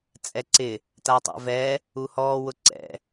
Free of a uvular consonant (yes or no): yes